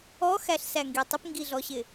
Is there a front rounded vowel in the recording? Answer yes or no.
no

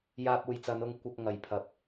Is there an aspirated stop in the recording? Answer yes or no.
yes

